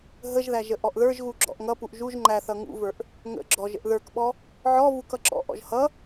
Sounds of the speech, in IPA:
ɦ ə ʒ ð æ ʒ ə ʔ ɔ ʔ ð ə˞ ʒ ɣ u ɡ͡ǁ ɔ̰ ʔ ŋ ʌ p u ʔ ʒ u ʒ ŋ͡ǃ æ θ ʌ ŋ ṵ v ə˞ ʔ | ŋ ə̰ ɡ͡ǁ ɔ ʒ ə̰ ʔ ð ə˞ k ɓ ɔ | ʕ ɔ v u k ʌ ǁ ɔ̰ ʔ ɔ̰ ʒ h ʌ

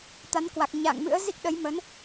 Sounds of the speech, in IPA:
t̪ a˨˦ n k w a˨˩ k̚ ɲ a̰ː˧˨ ŋ m ɨ̰˧˥ ə̯ z i˦˥ k̚ ɗ ə˨˦ j m ə˨˦ n

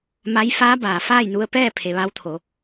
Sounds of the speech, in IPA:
m a˧˥ j f aː˧˥ b aː˩ f aː˥˨ j n u˧ ə̯ p ɛː˥˨ pʰ e˩˧ ʋ a˧˥ w t̪ʰ o˩˧

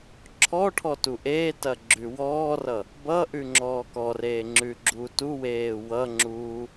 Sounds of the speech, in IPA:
ǁʰ ɔ ʈʰ ɔ t u ʔ eː t ɐ ɡ͡ǁ ʉ w ɔː r ʌ | b ʌ ʔ ʉ ŋ͡ǁ ɔː k ɔ r eː ŋ͡ǁ ʉ ɡ͡ǁ u t u w eː w ʌ ŋ͡ǁ uː

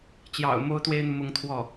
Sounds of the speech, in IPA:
t͡ɕ j ɑ̰˨˩ ʊ̯ m o˥ ʊ̯ t̪ w e˥ ɪ̯ n̪ u˨ m ʊ˥˧ ŋ t̪ʰ w ɔ˥˩

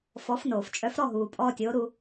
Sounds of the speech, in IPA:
f ɔ˩˥ f n oː˩ f t͡ʃʼ œ˩˥ f ɾ ɔ˥˩ ɦ uː˩ pʼ ɔː˧ tʲ oː˩˥ ɾ u˧

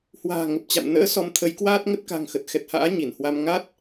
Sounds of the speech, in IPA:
h w a̤ː˨˩ ŋ ə˨˩ p̚ t͡ɕ a̰˧˨ m n ə̰ː˧˥ s ɔ˨˦ m t̪ʰ ə˨˦ j k w aː˦˥ t̚ ŋ ə˦˥ t̚ k a̤˨˩ ŋ x ə˨˩ t̚ x ɛ˨˩ t̚ h a̰ː˧˥ ɲ i˧˩ n h w a˧ m ŋ a˦˥ t̚

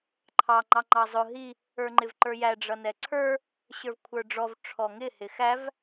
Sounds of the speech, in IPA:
ǃʰ ɑ ŋ͡ǃ ɑ ŋ͡ǃ ɑ zˤ ʊ ɦ i | ə˞ ŋ͡ǃ ɪ v ǃ ə˞ j æ ɖ͡ʐ ʌ n ɛ ǀʰ ə˞ | ɕ ə˞ v kʷʰ ə˞ ɖ͡ʐ ɔ v ʈ͡ʂʰ ɔ ŋ ɪ h ɪ x æ v

